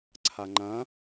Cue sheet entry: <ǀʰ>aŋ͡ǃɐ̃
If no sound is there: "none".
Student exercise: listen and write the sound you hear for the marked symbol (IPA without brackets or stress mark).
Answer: ǀʰ